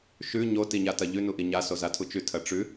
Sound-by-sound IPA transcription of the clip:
ʃʉ ɲo tiɲatɐʎʉ nuʔiɲa sozatʰut͡ʃʉ tʰɐʈ͡ʂʉ

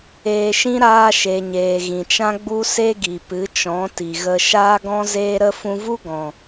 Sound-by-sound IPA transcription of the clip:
eː˧ʃĩ˦ ɾaː˧ ʃe˨ɲeː˨ ɣĩ˨t͡ʃã˦ɡ͡bu˦se˦ ɡi˨pɨ˨˦t͡ʃɔ̃˨˦ ti˨ɣə˧ ʃaː˦ɡɔ̃˦zeː˦ɾə˦ fũ˧vu˦ɡɔ̃˨

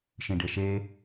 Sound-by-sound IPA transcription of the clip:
ʃĩɖeʃe

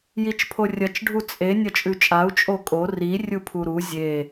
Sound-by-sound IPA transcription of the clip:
jit͡ʃpʰorʲɐt͡ʃ ɖʱut͡sʼe nʲɐt͡ʃʼʉt͡ʃʼau̯ t͡ʃʼokʼo ri rʲupʰuɾu zʲe

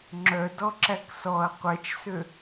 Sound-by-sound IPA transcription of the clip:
ŋ͡ǁœ dɔǁæksɔɐ̯ qʷɛt͡ʃsø

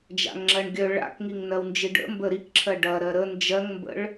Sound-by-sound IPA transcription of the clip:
d͡ʒa̰ŋŋ͡ǁɜɳɡʲœ ɭa̰k ŋiŋnɜwnd͡ʒiɖə̰ mbəɾikǁʰɜ ɖɐ ɾɜɾə nd͡ʒɜŋmbə̰ɭ

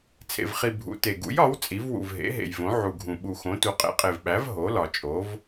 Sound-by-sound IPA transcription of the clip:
t͡sʰḛ˨v χi˨ bʱṵ˨˥te˨ ɡṵ˨˥jɒ˨˥w t͡sʼi˨˥v wṵ˨v ɦḛ˨˥ɦḛ˨jvõ˨˥ ʕu˨ɡʱũ˨ ɓu˨xõ˨˥tu˨˥ qʼḛ˨˥qʼe˨vɓæ˨˥v ɦo˨˥lɒ˨ t͡ʃʼo˨˥v

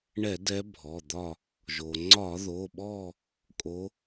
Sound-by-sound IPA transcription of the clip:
ɳɛ˧˩˧dɛ˨˦ bʱɔ˩˧˩d̪ɒ˦˨ | ʒo˩ŋ͡ǀɒ˧˩˧ðo˩˧˩ɓɔ˦˨ | kʼo˨˦

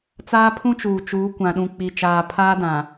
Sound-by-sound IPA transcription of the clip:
t͡saː˦pʰũ˦t͡ʃuː˨ t͡ʃuː˨˦kʷã˨ ɗũ˨k͡pi˨t͡ʃaː˨ pʰaː˦dã˨

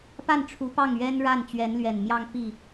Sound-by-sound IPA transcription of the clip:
pa˥˩n ʈ͡ʂʰu˧˥pɑ˥˩ŋɥɛ˥n ɻa˥˩n t͡ɕɥɛ˧˥nlɥɛ˨˩nmjɑ˥˧ŋ pi˥˩

